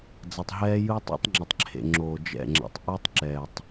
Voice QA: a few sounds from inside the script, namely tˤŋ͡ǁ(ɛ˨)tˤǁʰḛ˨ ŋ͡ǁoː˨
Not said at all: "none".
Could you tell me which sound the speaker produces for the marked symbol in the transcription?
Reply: ɛ˨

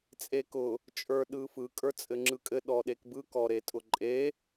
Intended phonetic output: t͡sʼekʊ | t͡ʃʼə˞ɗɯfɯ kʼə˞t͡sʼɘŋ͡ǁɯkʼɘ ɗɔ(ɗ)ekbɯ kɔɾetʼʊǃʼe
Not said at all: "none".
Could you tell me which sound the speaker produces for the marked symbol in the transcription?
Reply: ɗ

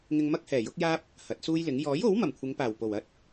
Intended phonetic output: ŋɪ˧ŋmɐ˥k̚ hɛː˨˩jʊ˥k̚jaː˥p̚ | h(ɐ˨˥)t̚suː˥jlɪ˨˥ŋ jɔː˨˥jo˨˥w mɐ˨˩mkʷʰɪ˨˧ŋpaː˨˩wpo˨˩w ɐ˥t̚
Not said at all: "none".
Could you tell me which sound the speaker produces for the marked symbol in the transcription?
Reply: ɐ˨˥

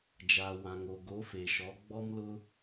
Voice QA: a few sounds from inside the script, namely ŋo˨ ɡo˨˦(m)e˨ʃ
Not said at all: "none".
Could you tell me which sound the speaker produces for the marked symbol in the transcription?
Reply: f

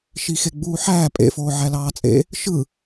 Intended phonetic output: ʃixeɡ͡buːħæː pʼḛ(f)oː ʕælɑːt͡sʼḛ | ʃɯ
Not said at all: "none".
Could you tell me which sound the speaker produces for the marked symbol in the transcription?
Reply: f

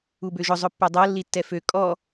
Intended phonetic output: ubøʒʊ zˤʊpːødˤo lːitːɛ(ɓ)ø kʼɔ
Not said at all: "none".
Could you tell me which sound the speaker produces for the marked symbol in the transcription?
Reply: f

